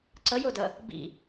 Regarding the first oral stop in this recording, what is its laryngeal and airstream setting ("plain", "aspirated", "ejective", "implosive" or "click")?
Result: click